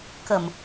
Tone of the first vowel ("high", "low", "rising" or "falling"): low